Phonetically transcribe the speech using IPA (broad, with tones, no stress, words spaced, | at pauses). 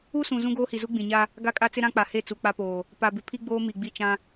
u˦sũ˨ zũ˦ɡoː˦hi˨zu˦ ɡ͡bĩ˨ɲa˦ | ɡa˦kʼa˦t͡sɪ˦ ɾã˦k͡pa˨he˦˨ t͡su˨k͡pa˦poː˨ | pa˨bɪ˨ pʰi˦ ɡ͡boː˦mi˨ɡ͡bi˦˨ t͡ʃã˦